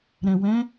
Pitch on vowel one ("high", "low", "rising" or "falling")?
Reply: low